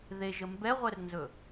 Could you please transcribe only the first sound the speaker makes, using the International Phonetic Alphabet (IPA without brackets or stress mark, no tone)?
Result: ð